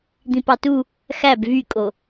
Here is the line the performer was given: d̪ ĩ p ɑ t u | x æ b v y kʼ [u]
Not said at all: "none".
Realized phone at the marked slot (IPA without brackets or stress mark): o